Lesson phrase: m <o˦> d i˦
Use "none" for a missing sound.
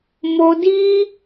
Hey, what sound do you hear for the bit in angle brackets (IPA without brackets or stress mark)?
o˦